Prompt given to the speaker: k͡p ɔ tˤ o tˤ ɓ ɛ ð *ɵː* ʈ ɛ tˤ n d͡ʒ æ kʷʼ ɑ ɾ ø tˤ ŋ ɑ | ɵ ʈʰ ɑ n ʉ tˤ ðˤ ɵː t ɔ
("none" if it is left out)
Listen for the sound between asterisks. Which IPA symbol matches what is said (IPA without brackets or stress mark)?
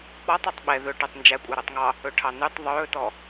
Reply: ɵ